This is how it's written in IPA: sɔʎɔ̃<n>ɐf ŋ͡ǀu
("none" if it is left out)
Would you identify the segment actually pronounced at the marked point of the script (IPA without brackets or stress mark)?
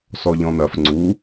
n